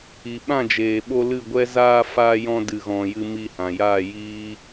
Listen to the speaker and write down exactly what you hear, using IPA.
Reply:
i˨ ɓ ã˦˨ d͡ʒ eː˨ ɓ o˧ l ɨ˦˨ ɡʷ ɛ˦ z aː˧ f a˧ j ɔ̃˧ d ɨ˨ ɣ ɔ̃˨ j ɨ˧ m i˧ h ã˨ j aː˦˨ j iː˦

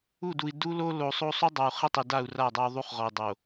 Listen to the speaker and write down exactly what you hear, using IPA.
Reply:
u˦˨ d u˨ i̯ d u˦ l o˦ l o˨ sˤ o˦ sˤ u˦ dˤ a˨ u̯ χ i˦ tˤ i˨ d a˦˨ u̯ r a˦˨ dˤ a˦ u̯ ðˤ u˦ χ ʁ ɔ˨ i̯ dˤ o˨

